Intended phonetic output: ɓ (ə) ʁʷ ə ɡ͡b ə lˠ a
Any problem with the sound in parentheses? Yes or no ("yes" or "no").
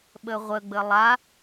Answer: no